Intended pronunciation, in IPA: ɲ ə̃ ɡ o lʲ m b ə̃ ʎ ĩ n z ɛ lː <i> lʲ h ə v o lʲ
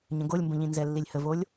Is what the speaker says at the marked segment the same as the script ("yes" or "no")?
yes